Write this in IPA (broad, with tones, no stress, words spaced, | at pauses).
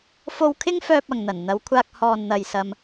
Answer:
fo˨wkʰɪ˧ŋfœː˨p̚ ɐ˨ŋn̪ɐ˨˩n n̪ɐ˨˧wkʷʰaː˧k̚ hɔː˨nn̪ɐ˨jsɐ˧m